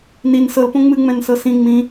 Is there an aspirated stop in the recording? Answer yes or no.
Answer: no